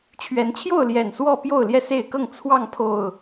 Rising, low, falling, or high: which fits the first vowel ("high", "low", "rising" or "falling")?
rising